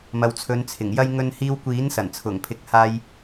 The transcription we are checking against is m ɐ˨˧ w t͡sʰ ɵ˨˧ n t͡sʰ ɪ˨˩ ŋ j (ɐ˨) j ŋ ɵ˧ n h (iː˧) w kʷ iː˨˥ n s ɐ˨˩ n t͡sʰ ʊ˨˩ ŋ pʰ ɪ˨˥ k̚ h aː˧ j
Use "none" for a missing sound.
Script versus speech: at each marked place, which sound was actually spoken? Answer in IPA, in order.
ɐ˥, iː˧

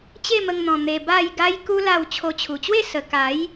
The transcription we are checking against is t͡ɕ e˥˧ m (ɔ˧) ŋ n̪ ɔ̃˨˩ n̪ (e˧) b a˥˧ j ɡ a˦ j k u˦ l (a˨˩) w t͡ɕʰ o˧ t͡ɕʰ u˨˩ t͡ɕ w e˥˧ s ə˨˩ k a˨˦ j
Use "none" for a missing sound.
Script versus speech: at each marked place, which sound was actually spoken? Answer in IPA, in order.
ə˧, e˧, a˥˧

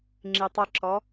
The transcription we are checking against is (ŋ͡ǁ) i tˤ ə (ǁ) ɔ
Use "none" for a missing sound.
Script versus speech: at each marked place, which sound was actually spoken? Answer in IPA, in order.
ŋ͡ǁ, ǁ

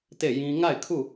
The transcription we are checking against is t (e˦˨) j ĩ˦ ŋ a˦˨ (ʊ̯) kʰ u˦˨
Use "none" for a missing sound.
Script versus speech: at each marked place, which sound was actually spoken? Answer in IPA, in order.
e˦˨, ɪ̯

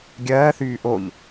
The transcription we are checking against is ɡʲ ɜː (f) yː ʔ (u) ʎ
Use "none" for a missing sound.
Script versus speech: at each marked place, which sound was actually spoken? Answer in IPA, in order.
θ, o

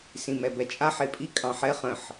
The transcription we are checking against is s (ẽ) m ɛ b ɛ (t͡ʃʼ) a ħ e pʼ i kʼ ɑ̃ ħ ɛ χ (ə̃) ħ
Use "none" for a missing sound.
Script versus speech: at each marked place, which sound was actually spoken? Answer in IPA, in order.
ĩ, t͡ʃʼ, ə̃

